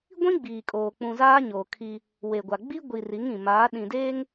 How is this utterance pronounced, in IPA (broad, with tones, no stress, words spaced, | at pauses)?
ɡʷĩ˦ ɡ͡biː˨kʼoː˨ k͡pũ˨zaː˦ ɲoː˨kʰi˦ | we˨ɡʷa˨ ɡ͡bi˦ɡʷi˨ ri˨˦ŋ ĩ˨ maː˨˦ɗĩ˨deː˦ŋ